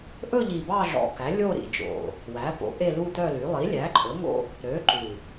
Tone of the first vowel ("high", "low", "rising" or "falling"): falling